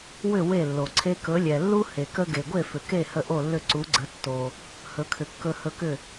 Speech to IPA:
w ʏ˥˩ w e˥˩ lː o˩ ǀʰ e˧ k ɵ˩˥ lʲ ɛ˩ lː u˥ h e˩ k ə˧ ɡ e˩ ɡʷ e˥˩ f ʏ˩ k e˥˩ h ə˥˩ ʔ o˥˩ lː ʏ˥˩ ǀ u˩˥ ɡ͡ǀ ə˩˥ tː o˩ | h ɵ˩˥ kʰ ʏ˩ kː ɵ˧ h ɵ˧ k ʏ˥˩

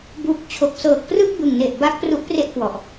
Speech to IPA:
b u˨˩ k̚ t͡ɕʰ o˨˩ k̚ s ɤː˨˩ k̚ p r ɯ˥˩ k̚ b ɯ˨˩ ŋ n e˨˩ ʔ b a˦˥ k̚ p r u˦˥ ʔ p r e˥˩ ʔ k w ɔ˨˩ ʔ

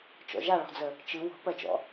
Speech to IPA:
t͡ʃ ɔ̰ ʒ a ɭ ɔ̤ d͡z ə | t͡ʃ ɯ w ɔ̤ p ɜ t͡ʃ ɔ̰

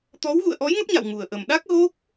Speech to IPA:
t̪ ɔ˨˦ w ɣ ṵ˧˨ ə̯ ʔ ɔ˨˦ j ŋ ə˦˥ p̚ ɲ a̰˧˨ w ŋ u˨˩ ə̯ ʔ ə˨˩ m ɗ a˦˥ k̚ ɣ o˦˥ k̚

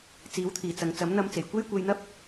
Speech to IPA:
t͡s iː˨˥ w t̪ʰ iː˨˩ t͡s ɐ˨ ŋ t͡s ɐ˨˥ m n̪ ɐ˧ m t͡s e˨˩ j kʷ e˥ j kʷ e˧ j n̪ ɐ˥ p̚

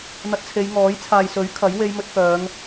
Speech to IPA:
n̪ ɐ˧ t̚ t͡sʰ e˨˧ j ŋ ɔː˨˥ j t͡sʰ aː˨ j s ɵ˨˥ ɥ kʰ ɐ˨˥ j w e˧ j m ɵ˧ t̚ k œː˨˧ ŋ

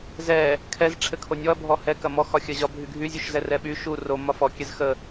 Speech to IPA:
z ɛ | kʰ ɛ z ʈ͡ʂʰ ɘ kʰ o nʲ ɔ ɐ̯ bʱ ɔ h ɛ k ɐ m ɔ x ɒ xʲ ɐ ʑ ɒ bʱ y ɡʱ y zʲ u ʃ z ɛ r ɛ ɓ y ʃ u r o m ɒ f ɔ kʲ ɛ z x ə

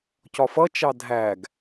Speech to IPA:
c ɒ f ʌ t͡ʃ ɑ dʱ æ ɡ

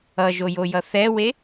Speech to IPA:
ʌ ʒ o j o j ʌ θ ɛ w e

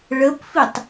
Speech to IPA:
ɭ ə p f i tˤ

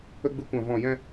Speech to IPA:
ə˦ ɡ͡b ɨ˧ kʷ ã˨ v ɔ̃˨ j ɛ̃˦

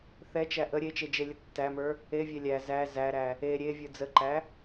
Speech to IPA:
θ ɛ t͡ʃ æ ʔ ə ɾʲ e t͡ʃ e d͡ʒ e lʲ ə tː æ m ə˞ | e vʲ ɛ lʲ æ z æ z æ ɾ æ | e ɾʲ e vʲ ə˞ d͡z ə ǃ æ

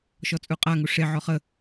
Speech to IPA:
ʃ ɔ t͡sʼ u qʼ a ŋ u ʂ e ʕ ɔ χ ə

